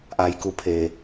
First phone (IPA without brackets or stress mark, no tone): ʔ